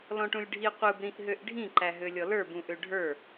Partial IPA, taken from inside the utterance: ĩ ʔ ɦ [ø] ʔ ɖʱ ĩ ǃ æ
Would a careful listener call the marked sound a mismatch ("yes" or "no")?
no